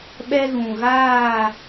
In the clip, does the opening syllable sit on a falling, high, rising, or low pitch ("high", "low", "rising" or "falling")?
high